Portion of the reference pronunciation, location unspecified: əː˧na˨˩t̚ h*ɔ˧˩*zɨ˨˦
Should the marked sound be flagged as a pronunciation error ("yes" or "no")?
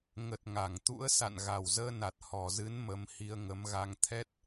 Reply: yes